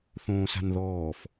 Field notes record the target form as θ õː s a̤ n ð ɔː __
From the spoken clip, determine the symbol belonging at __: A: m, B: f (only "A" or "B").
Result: B